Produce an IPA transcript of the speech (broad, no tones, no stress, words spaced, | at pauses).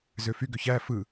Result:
zøfyɡø çæ fɯ